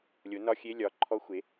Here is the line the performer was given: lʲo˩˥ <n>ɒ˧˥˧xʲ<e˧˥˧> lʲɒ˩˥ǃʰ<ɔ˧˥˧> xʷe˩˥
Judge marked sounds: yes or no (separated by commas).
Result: yes, yes, yes